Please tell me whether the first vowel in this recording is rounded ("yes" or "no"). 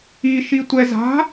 no